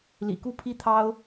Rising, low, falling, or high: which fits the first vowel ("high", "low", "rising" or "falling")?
low